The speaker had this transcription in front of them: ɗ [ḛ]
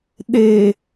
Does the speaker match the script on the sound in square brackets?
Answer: no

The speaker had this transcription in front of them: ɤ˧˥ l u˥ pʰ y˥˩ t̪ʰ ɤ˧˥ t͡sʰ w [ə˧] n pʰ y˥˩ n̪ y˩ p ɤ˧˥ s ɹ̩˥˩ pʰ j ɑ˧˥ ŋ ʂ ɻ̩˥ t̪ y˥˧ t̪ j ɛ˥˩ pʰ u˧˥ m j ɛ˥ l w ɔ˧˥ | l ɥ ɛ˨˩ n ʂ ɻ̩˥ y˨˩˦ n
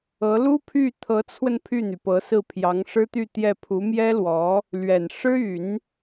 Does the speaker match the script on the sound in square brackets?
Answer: yes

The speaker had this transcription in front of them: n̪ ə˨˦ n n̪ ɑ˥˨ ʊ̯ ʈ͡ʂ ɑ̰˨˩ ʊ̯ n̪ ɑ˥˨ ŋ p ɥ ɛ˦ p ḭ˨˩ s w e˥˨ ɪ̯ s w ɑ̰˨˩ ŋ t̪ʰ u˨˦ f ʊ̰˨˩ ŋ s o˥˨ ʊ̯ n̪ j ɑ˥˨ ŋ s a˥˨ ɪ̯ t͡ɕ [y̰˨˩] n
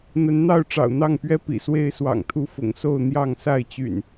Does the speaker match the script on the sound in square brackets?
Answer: yes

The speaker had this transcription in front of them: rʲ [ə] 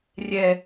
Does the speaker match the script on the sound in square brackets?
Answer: no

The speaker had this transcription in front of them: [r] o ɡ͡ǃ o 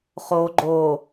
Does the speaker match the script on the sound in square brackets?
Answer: no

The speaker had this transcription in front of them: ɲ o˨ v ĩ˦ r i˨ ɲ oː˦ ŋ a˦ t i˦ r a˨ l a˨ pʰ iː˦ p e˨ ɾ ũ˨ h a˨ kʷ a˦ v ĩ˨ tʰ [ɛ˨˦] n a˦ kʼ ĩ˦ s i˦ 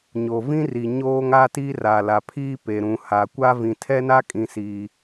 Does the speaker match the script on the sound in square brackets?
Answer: no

